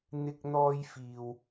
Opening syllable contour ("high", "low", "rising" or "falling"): high